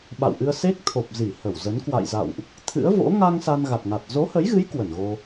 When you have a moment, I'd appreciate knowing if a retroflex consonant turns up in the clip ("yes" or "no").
no